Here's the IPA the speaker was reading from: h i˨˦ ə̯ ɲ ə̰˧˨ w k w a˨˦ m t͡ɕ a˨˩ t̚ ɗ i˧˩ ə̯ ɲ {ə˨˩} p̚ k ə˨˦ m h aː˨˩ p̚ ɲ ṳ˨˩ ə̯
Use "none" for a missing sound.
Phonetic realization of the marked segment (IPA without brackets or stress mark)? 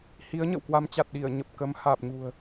ə˨˩